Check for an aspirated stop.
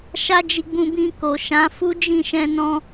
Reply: absent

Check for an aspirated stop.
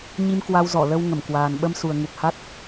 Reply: absent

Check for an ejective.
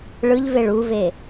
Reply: absent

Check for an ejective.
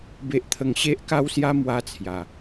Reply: absent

